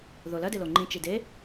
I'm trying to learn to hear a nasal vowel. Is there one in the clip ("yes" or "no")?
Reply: yes